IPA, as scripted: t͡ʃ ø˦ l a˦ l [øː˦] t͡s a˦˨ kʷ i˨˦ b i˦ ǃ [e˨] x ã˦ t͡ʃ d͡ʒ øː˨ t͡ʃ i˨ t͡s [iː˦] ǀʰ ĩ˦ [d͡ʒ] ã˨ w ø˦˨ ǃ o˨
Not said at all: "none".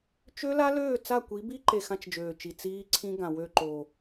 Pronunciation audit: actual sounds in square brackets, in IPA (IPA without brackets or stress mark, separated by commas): øː˦˨, e˨, iː˦, ɡ